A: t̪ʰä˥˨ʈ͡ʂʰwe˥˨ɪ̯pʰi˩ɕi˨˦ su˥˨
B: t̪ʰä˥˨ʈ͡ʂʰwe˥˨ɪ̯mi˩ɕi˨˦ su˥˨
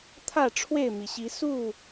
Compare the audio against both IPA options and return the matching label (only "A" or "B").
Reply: B